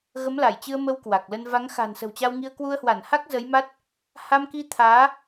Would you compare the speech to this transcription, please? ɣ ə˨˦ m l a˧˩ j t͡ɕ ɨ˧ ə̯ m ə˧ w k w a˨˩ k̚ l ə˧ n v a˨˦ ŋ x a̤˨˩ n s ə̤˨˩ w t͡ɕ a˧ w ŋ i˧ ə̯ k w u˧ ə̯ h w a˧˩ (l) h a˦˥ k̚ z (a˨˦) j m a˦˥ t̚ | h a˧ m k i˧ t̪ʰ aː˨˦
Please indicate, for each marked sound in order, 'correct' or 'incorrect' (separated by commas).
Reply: incorrect, incorrect